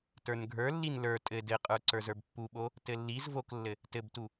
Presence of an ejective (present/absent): present